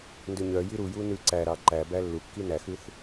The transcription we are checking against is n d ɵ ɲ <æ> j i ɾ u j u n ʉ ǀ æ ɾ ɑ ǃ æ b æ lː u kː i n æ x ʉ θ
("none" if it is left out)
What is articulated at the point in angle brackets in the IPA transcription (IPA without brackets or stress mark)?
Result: œ